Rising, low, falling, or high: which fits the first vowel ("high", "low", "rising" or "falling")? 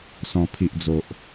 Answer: low